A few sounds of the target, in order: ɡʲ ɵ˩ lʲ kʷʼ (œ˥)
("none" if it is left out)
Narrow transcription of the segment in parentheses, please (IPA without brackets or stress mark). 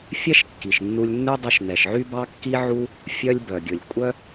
œ˥